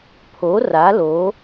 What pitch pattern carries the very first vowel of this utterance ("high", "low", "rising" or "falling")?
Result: rising